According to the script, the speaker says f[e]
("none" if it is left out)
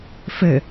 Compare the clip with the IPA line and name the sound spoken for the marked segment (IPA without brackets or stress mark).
ɘ